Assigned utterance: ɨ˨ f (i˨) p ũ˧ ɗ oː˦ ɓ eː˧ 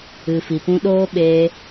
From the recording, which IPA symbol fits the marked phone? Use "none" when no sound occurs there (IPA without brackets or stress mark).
i˨